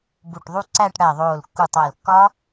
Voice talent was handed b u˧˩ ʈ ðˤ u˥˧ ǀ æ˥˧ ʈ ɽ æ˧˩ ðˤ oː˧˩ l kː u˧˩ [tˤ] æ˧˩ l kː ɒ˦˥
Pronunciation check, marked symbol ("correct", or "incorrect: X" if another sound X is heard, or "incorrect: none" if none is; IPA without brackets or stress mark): correct